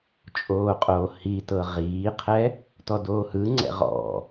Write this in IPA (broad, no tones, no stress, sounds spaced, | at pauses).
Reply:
t͡ʃʼ oː qʼ oː h i t ɤ ʁ iː qʰ ɛ | t ɔ d oː h ɯ ŋ͡ǀ ɛ̰ ʁ ɔ̰